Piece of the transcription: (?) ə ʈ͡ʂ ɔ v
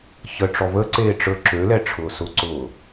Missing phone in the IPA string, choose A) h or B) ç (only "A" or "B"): B